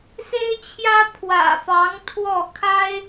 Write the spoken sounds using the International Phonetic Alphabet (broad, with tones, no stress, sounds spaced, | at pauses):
s e˥ ɪ̯ t͡ɕʰ j ä˥ pʰ w ä̰˨˩ f ɑ˧˥ ŋ t̪ʰ w ɔ˥˩ kʰ a˥ ɪ̯